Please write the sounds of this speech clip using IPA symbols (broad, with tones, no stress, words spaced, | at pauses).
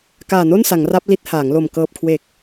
kaː˨˩no˥˩nsa˩˦ŋ ra˦˥p̚li˦˥t̚ haː˩˦ŋlo˨˩m kɤː˨˩p̚kʰwe˨˩k̚